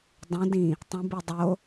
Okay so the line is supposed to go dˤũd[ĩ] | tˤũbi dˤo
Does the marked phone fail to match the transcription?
no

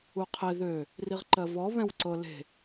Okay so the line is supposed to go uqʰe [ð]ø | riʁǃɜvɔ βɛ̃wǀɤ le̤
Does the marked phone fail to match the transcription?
no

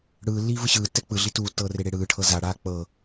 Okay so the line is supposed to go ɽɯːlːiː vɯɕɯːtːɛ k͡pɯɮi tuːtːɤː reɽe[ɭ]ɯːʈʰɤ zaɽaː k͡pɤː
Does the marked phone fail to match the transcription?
yes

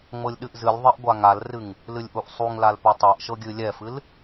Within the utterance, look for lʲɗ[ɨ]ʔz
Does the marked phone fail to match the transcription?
no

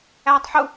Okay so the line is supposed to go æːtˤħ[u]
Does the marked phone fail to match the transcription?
no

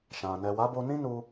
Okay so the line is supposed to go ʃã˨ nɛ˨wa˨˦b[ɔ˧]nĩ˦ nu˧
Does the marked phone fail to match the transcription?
yes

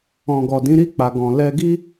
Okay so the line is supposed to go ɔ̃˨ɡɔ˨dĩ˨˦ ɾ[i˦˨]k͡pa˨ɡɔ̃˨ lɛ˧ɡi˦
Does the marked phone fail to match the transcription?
no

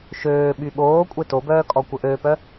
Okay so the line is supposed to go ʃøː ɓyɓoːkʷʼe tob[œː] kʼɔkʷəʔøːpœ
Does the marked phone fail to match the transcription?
no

